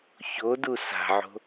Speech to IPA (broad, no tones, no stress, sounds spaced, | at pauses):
ç o d u s a̤ ʕ o̤